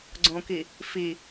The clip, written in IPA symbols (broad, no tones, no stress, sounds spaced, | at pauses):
ɡ͡ǀ õ k i | f i